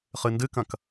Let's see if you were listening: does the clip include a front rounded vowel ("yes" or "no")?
no